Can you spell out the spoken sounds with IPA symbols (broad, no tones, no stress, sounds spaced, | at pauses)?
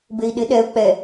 b e i̯ ɗ ɪ ɗ ɛ u̯ k͡p ɛ